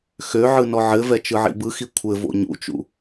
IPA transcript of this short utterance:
x ø ʕ ɯ n ɔ ʕ ɘ v ɛ t͡ʃ ɯ ʕ ḭ b ɯ x i kʷʰ ɘ v o̰ ɲ ṵ t͡ʃ ṵ

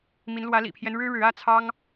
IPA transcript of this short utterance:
m i˧˥ n l w ä˧˥ l ḭ˨˩ pʰ j ɛ˦ n ɻ ɻ̩˥ ɻ ɻ̩˧˥ ä˥ t͡sʰ ɑ˥ ŋ

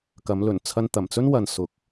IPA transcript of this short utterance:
k ɐ˨˥ m l ɵ˨˩ n t͡sʰ ɐ˧ n t̪ ɐ˨˩ m t͡s ɵ˥ n w ɐ˨ n s ʊ˨ k̚

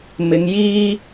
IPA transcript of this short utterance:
m ɪ˨˧ ŋ j iː˥

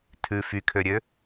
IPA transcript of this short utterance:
tʰ ʉ f y kʰ ø ɾʲ ø

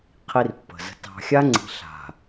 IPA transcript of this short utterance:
qʰ i˦ r pː ə̤˨ z ə̤˨ t ɑ̤˨ xʲ a˦ ŋ͡ǀ i̤˨ ɬ a̤˨

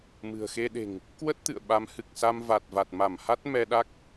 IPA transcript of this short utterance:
m ɨ̤˨˩ ə̯ x e˧ ɗ e̤˨˩ ŋ | k w ə˦˥ t̚ t̪ ɨ̰˧˨ ə̯ ɓ a˨˦ m h ɨ˨˩ k̚ s a˧ m v a˨˩ t̚ v a˨˩ t̚ m a˧˩ m h a˦˥ t̚ m ɛ˧ ɗ a˦˥ k̚

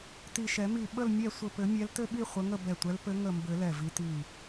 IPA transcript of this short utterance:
t i˧˩ ʃ ɛ˨˩˦ m i˧˩ ɓ ə˥˨ l mʲ ɛ˥˨ sʷ ɘ˧˩ p ɘ˨˩˦ mʲ ɛ˨˦ l t ɘ˥˨ ɓ i˥˨ χʷ ə˨˦ ŋ ə˥˨ b ɛ˧˩ tʷ ɛ˨˦ l p ɘ˨˦ ŋ ə˧˩ m b ɘ˨˩˦ l ɛ˧˩ v i˨˦ t i˧˩

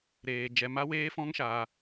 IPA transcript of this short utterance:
ɾ eː˧ d͡ʒ ɛ˧ m a˦ w eː˦ f ɔ̃˦ ŋ ʃ aː˧

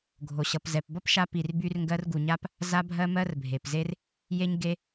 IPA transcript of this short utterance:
ɡʱ o˨ ɕ ʌ˨ p z ɛ˨ p b ʌ˦ p ʃ a˧ p i˨ r b y˧ r ŋ ɡ ɜ˧ r ɡ u˨ ɲ a˦ p | z a˧ bʱ ɜ˧ m ɜ˧ r bʱ e˨ p z e˦ r | j e˦ ɲ ɡ e˦

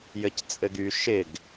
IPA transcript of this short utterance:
j ɘ c t͡sʼ ɘ ɡ y ʃ ɪ ɡ

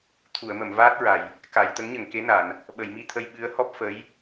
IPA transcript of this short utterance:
t̪ʰ u˨˩˨ ə̯ m ə˨˩˨ m v aː˦˥ t̚ ɹ a˨˩˨ j | k a˨˩˨ j t̪ ə˧˥ ŋ ɲ ə˨˩ ŋ k e˧˥ n a˨˩˨ n | ɓ ə˨˩˨ j m i˧ t̪ʰ ə˧ j ɓ ɨ˧˥ ə̯ h ɔ˦˥ p̚ f ə˧˥ j

